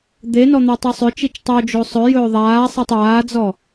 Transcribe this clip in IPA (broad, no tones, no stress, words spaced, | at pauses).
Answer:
d̪enɔ n̪atˤosˤʏt͡ʃit͡ʃ tˤod͡ʒo sˤɵ jɵːðˤaːsˤatˤ aːd͡zɔ